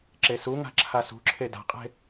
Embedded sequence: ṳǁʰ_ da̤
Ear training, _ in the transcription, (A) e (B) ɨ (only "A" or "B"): A